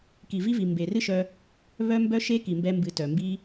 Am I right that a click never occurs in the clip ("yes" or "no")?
yes